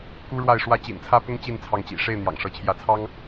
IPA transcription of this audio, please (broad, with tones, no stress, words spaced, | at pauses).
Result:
ku˦ ɻwa˥˨ɪ̯ʂwä˦ t͡ɕḭ˨˩nt͡sʰä˦pʊ˦ŋ t͡ɕi˥˨nt͡sʰɑ˨˦ŋt͡ɕḭ˨˩ ʂe˥˨ɪ̯ n̪jɑ̰˨˩ŋʂɤ˨˦t͡ɕʰjä˥˨ t͡sʰɑ˦ŋ